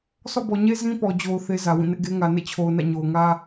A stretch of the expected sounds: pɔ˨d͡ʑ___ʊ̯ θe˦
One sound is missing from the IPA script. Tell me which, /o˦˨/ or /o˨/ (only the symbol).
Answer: o˨